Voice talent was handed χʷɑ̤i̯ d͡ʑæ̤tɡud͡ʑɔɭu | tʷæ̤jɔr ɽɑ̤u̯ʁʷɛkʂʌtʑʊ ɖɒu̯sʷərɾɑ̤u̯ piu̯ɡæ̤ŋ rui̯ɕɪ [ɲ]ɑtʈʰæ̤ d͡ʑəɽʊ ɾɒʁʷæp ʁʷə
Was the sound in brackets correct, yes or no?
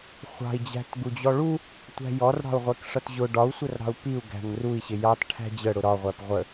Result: no